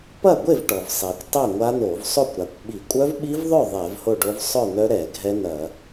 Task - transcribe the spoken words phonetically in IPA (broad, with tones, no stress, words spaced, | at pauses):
pɐ˥˨ɡʷe˥˨vʈɔ˩vsˤɛ˩kʷ tˤɛ˥˨ŋʷa˦˥n̪o˧˩˧v sˤo˥˨kʷɾa˩kʷɓi˧˩˧ kʷʼœ˦˥vɓi˦˥vðˤœ˥˨ ðˤɛ˧˩˧vho˥˨ɖo˦˥v sˤœ˥˨n̪œ˦˥ɾɛ˧˩˧ ɡʱɛ˦˥n̪ɐ˧˩˧